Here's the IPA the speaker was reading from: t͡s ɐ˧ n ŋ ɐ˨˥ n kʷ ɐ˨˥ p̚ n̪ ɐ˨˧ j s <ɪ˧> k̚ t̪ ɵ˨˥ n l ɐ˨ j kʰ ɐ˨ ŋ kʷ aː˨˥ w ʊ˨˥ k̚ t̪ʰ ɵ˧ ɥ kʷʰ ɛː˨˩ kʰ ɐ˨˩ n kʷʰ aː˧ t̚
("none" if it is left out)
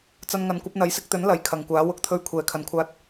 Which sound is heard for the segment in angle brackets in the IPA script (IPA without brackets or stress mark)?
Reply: ɪ˧